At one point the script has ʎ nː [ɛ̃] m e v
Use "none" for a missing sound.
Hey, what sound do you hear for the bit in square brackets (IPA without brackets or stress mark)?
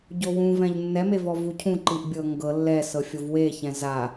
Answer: ɛ